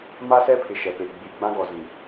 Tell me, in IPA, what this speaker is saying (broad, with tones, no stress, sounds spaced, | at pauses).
m a˦ s ɛ˦ pʰ ɪ˨ ʃ ɛ˨ p e˨ ɡ͡b i˨ ɡ͡b ã˦ ɡ ɔ˨ z ĩ˨